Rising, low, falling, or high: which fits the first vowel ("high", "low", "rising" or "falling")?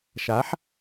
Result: rising